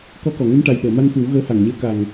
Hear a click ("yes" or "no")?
no